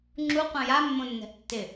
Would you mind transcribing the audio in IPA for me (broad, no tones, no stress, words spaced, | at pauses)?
ŋ͡ǁuqʷã jamːõnːɛ̤ʔ tːɪ